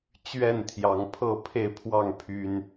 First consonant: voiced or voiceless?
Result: voiceless